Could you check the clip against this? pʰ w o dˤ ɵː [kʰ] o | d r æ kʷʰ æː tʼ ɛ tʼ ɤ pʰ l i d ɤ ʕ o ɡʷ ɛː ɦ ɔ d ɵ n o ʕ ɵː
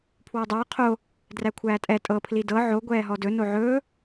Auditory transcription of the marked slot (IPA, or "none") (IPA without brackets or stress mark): qʰ